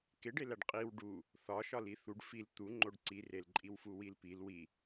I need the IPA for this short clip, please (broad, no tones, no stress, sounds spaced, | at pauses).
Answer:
k e ɖ e l æ ɖ qʼ i w ɖ u | θ ɒ ʃ ɒ l i θ u ɖ f i l t̪ u ŋ͡ǃ o ɖ ǀ i r e l ǃʼ i w f u w i l p i l w i